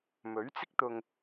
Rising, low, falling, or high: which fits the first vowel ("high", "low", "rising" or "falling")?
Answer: rising